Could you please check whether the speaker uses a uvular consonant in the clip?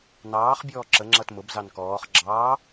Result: yes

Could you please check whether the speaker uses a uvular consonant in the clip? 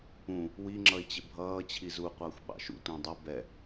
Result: yes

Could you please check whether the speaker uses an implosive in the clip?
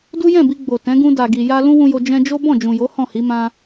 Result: no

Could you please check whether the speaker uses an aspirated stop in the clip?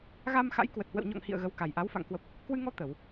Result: no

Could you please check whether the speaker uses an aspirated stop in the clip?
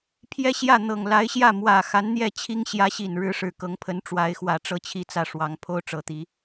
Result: yes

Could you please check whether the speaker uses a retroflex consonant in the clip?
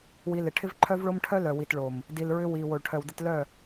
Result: yes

